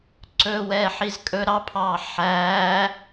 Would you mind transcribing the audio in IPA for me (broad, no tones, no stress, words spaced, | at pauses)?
ǀɵwɛː ħizkʼɵ ɾɑpʰɑː ħæː